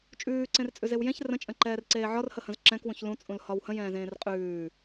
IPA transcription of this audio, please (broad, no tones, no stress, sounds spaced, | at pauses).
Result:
t͡ʃʼ ʉː ǀ ẽ r t͡sʼ ʉ z e w j ẽ ç r ə̃ t͡ʃʼ ə̃ ǃ ɛː r ǀ eː ʕ ɒ r h ə h ə̃ z ǁ ɛ̃ k w ũ ç l ũ t͡sʼ ũ l h ɒ w h ə̃ j ɛ̃ː z ẽː r qʼ ʉː